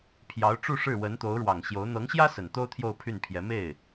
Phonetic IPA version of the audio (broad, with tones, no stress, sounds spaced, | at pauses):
pʰ j ɑ˧˥ ʊ̯ ʈ͡ʂ u˥˧ ʂ ɻ̩˥˩ w ə˧˥ n t̪ o˧˥ ʊ̯ ɻ w ɑ˨˩ ŋ ɕ j o˧˥ ʊ̯ n̪ ɤ˧˥ ŋ ɕ j ä˥ s ə˨˩ n t̪ o˥ ʊ̯ t̪ʰ j o˥˧ ʊ̯ pʰ y˥˩ n pʰ j ɛ˧˥ m e˥˩ ɪ̯